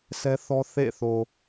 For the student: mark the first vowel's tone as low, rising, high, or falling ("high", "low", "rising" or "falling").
high